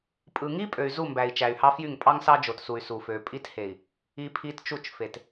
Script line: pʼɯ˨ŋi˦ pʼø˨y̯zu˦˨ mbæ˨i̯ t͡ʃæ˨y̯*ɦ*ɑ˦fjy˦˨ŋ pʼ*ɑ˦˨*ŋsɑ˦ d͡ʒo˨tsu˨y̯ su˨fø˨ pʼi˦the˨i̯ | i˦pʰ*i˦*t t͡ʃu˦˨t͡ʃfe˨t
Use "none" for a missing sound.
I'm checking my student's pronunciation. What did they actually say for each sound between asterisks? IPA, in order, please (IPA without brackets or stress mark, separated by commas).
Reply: h, ɑ˦, i˦